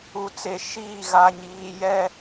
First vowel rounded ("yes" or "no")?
yes